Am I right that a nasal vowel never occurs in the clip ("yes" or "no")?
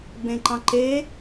no